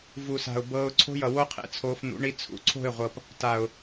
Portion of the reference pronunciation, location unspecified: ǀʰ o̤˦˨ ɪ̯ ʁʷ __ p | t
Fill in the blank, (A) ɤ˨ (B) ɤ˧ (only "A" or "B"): A